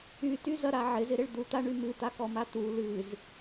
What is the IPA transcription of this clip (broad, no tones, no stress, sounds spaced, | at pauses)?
y t y z ɐ ɾ a ʕ ɪ z ɪ ɾ ɪ ɭ d̪ u t̪ a ɳ y m ɨ t̪ a k ɔ m a t̪ u l ɨ z